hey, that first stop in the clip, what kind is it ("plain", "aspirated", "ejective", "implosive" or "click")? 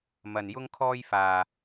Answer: aspirated